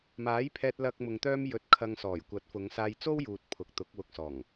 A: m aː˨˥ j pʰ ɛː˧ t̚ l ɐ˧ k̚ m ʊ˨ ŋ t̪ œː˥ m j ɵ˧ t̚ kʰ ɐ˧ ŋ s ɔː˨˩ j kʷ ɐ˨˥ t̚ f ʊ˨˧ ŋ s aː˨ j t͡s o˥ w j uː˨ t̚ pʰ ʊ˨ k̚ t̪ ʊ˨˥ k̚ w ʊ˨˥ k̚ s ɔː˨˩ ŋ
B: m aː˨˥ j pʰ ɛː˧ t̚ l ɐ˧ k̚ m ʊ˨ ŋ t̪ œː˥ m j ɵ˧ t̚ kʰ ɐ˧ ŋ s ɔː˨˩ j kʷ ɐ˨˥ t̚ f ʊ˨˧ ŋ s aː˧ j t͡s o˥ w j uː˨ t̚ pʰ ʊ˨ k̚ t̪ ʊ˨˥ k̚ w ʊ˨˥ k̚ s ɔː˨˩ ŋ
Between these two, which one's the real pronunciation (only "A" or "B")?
B